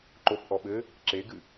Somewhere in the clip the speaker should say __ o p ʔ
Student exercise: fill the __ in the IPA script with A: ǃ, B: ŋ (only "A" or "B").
A